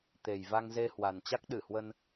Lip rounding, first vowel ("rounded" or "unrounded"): unrounded